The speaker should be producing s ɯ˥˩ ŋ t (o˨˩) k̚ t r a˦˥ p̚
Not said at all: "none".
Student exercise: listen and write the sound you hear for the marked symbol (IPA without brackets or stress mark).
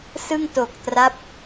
o˨˩